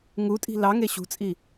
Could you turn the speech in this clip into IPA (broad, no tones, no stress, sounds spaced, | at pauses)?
ŋ u tʼ i̤ l ɑ ŋ e ɕ ṳ t͡sʼ i